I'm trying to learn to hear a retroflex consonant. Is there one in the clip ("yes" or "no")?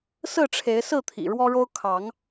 yes